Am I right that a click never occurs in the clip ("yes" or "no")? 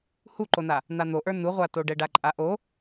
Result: no